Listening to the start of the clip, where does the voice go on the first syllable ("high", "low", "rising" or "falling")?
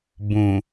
low